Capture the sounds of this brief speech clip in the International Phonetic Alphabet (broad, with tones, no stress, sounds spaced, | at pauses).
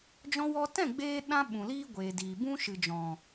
d͡ʒ ɔ̃˧ w ɔ˧ t ɛ̃˦˨ ɡ͡b eː˦ ɗ ã˦ ɓ ũ˨ l iː˦ ɡʷ eː˨ d iː˨ b ũ˦ ʃ ɨ˨ d͡ʒ ɔ̃˨